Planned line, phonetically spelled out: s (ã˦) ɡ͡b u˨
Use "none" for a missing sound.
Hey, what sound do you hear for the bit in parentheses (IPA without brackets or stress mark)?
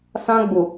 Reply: ã˦